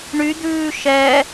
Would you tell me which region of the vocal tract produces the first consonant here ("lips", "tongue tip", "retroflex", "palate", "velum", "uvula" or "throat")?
retroflex